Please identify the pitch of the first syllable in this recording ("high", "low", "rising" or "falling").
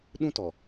high